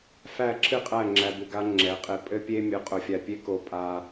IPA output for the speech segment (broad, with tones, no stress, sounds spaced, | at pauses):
f æ˦˨ ǁʰ ɨ˦ qʼ æ˦˨ ŋ͡ǁ æ˨ b ɨ˨ ɡ a˧ ŋ͡ǁ ɛ˨˦ qʼ e˧ pʼ ɘ˦ pʲ e˦ mʲ ʊ˧ qʼ ʊ˧ fʲ a˧ pʲ e˦ k o˧ pʼ a˧